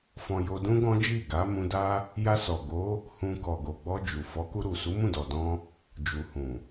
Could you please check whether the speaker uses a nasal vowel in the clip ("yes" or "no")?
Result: yes